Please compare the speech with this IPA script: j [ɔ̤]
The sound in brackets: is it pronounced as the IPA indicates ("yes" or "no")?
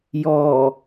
no